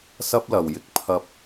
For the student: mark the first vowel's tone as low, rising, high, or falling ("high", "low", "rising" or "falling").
high